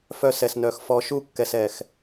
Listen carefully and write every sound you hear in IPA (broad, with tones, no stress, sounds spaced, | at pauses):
f œ˦ s ɛ˧ s n œ˧ x f ɔ˧ ʃ u˦˨ kː ɛ˧ s ɛ˧ x